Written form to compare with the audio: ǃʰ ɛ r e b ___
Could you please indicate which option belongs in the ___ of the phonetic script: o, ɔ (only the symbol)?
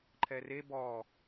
ɔ